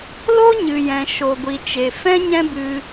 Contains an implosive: no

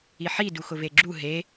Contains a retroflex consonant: no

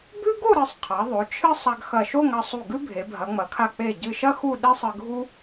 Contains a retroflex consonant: no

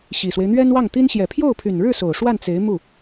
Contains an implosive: no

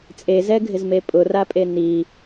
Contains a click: no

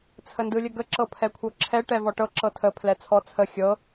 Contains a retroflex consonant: yes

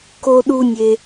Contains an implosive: yes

